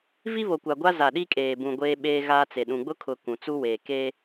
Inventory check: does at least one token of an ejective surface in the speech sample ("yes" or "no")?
yes